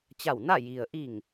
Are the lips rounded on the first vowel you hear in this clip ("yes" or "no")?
no